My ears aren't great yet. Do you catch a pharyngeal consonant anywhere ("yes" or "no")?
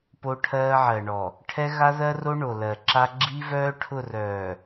yes